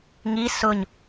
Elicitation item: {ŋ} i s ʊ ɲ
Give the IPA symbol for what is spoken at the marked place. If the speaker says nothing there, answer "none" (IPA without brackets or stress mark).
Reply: ŋ